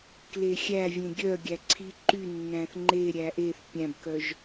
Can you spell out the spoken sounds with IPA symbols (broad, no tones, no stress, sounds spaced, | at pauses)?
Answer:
k l e xʲ æ vʲ ẽ ɡʲ œ ɡʲ æ ǀʰ i ǃ y nː æ̃ θ ŋ͡ǃ e ɾʲ æ ʔ e θ pʲ æ̃ b k œ ʒ